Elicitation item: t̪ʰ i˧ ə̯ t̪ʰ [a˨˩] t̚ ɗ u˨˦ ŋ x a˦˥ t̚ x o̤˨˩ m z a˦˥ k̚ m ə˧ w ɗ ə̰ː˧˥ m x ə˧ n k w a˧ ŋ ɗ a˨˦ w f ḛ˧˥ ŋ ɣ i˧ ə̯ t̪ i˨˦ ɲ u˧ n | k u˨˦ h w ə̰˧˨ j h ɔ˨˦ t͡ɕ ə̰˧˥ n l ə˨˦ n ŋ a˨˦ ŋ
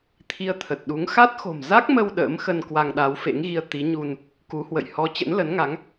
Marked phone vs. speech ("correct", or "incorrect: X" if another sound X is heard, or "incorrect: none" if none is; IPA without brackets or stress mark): incorrect: ə˨˩